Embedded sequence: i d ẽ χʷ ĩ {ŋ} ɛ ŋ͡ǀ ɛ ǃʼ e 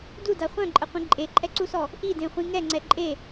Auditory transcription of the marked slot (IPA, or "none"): ŋ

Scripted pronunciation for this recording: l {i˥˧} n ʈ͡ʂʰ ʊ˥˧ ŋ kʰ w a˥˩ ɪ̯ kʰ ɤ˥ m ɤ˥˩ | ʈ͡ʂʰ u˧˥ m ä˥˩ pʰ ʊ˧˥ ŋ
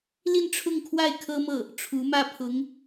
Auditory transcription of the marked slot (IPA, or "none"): i˥˧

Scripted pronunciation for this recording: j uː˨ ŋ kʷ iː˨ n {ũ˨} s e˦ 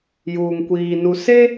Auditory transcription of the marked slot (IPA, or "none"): u˨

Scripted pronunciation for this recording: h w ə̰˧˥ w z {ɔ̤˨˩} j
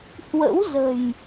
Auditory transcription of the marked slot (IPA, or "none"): ə̤˨˩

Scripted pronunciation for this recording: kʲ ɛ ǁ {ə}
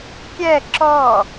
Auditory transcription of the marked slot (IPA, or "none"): ɔ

